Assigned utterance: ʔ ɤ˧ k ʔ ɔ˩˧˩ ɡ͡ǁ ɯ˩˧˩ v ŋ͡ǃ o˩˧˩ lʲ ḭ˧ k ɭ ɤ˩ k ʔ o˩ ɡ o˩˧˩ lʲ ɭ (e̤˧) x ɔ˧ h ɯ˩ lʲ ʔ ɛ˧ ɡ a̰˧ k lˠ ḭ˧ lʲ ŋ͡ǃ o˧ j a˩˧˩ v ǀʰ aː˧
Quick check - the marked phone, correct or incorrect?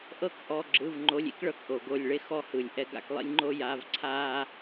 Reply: incorrect